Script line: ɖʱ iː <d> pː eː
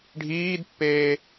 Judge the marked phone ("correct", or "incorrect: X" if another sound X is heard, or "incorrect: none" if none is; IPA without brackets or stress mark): correct